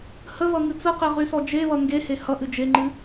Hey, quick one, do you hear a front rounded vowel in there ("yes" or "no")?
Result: yes